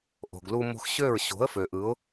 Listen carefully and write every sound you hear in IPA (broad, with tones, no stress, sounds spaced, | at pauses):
ʔ o̤˨ ɡ l u˧ m o̤˧ x ɕ ø˦˨ ɹ ɕ o̤˨˦ ə̯ f ø˨ ʔ ɯ˨˦ ʊ̯